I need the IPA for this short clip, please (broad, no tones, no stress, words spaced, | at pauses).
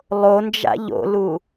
lˠond͡ʒa̰ ʎo̰lu